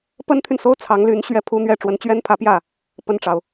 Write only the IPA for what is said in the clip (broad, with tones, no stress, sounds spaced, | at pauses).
p ə˥ n t̪ʰ y˨ n s o˥ ʊ̯ t͡sʰ ɑ˧˥ ŋ l y˧˥ n ɕ ɥ ɛ˥˩ pʰ u˥ n̪ ɥ ɛ˥˩ ʈ͡ʂ w ə˧˥ n t͡ɕ ɥ ɛ˥ n pʰ ä˧˥ p j ä˥˩ | p ə˥˩ n ʈ͡ʂ ɑ˩ ʊ̯